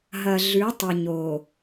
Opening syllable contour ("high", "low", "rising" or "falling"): low